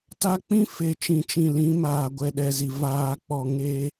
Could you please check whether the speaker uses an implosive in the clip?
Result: yes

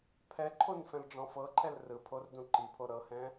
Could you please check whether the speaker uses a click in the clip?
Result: yes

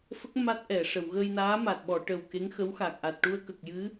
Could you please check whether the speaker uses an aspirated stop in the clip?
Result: no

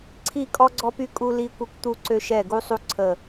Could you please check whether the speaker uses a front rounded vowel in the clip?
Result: yes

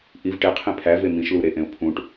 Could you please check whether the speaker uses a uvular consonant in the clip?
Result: yes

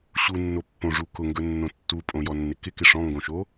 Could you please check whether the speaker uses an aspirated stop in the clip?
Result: no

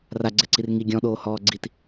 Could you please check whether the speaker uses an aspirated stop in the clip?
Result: no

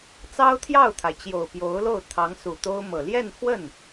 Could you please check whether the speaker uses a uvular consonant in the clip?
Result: no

